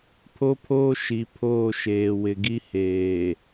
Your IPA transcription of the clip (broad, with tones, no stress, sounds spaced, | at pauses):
pʰ o˦ pʰ oː˦ ʃ i˨ pʰ oː˦˨ ʃ eː˨ w ɪ˨ ɡ i˦ h eː˨